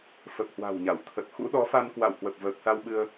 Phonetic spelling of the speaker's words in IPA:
fə˨˩p̚hwa̤˨˩wɲa˧˩wt̪ʰə˨˩t̚ xṵ˧˥ɗɔ˨˦fa˧nkwa̰˧˨w hwə˨˩p̚vəː˨˩k̚sa˧wɓɨ˧ə̯

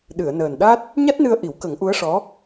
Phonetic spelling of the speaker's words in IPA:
ɗɨ˨˩˨ə̯nəː˨˩nɗa˦˥t̚ | ɲa˦˥t̚nɨ˧ə̯ʔi˨˩˦wkə˨˩˦ŋ ʔu˧˥ə̯ʂɔ˧˥

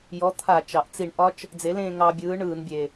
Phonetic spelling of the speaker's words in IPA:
jɔ˨˥t̪ʰa˧˩˧ t͡ʃɑ˩ʔt͡si˧˩˧ɳʔɒ˦˥t͡ʃ | d͡ze˨˥lẽː˥˧ ŋɑ˧bʲɯː˨˥ ɳɯː˧˩˧nbʲe˩

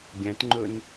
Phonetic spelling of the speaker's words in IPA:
ɡʲæ̃tŋ͡ǃɵn

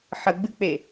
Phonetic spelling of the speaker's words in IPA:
ħəɡ͡bɨk͡pe

